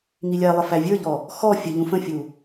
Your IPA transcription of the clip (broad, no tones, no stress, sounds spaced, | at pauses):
ŋ i lʲ æ lˠ ə f æ vʲ ə˞ ʎ ɔ | x ɔ fʲ ə ʎ ũ f ə̃ fʲ u